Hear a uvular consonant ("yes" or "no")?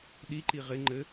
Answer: yes